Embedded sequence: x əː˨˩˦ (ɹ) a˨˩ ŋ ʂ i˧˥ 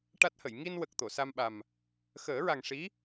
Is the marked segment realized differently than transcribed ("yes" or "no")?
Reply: no